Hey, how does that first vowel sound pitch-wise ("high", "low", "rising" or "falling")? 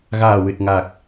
low